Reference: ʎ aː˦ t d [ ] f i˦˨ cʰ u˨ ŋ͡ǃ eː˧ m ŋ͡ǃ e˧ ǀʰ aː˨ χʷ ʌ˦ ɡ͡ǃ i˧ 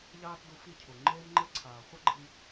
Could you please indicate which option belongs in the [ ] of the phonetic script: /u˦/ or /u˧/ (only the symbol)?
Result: u˧